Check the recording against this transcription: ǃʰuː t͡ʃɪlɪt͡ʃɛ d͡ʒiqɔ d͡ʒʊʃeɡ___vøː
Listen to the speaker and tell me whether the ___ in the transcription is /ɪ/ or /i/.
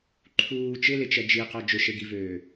i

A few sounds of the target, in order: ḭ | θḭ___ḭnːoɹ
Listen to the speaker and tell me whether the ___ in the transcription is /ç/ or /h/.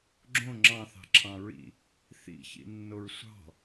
ç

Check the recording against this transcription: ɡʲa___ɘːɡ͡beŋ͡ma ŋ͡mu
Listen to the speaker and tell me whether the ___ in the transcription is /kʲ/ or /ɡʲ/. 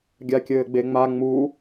kʲ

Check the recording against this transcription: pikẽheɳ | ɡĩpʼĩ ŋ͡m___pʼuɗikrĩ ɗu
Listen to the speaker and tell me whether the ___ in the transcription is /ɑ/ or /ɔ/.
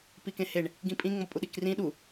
ɔ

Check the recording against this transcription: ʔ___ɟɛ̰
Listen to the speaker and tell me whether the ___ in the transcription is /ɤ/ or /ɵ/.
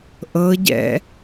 ɤ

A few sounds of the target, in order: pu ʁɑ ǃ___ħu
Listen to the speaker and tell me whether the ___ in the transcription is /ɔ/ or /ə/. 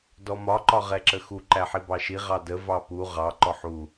ɔ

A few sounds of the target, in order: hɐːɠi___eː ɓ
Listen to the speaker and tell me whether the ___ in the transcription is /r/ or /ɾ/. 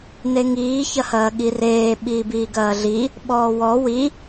r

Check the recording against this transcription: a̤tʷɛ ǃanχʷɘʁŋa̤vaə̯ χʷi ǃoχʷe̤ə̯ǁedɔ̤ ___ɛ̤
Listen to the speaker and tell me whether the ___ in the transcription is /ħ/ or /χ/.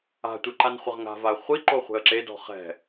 χ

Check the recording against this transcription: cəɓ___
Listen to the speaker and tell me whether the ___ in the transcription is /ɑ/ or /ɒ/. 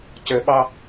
ɑ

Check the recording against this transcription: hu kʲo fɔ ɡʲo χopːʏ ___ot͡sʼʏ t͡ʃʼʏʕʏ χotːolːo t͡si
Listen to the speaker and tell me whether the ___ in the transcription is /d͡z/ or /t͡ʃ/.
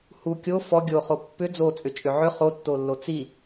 d͡z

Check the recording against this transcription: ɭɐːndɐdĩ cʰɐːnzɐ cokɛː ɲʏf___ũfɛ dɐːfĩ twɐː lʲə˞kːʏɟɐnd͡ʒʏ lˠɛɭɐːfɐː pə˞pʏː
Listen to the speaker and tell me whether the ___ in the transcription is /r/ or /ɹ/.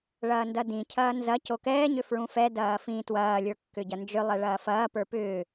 ɹ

